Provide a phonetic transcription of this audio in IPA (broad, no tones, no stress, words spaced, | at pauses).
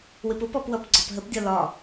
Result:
wɪpʊpɔp wʌpɡ͡ǀɒpɦəpdʲɒ lɒ